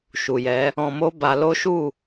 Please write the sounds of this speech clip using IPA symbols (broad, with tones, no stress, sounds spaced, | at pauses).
ʃ u˨ j ɛ˨˦ | ɔ̃˧ m o˦ b a˧ l o˦ ʃ u˦˨